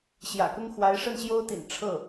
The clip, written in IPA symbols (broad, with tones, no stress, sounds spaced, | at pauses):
ɕ j ä̰˨˩ k ʊ˥ ŋ x w a˧˥ ɪ̯ ʂ ə˥˩ n ɕ j o˥ ʊ̯ t̪ ḭ˨˩ n ʈ͡ʂʰ ɤ˥˩